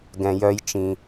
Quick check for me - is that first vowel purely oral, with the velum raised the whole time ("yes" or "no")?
no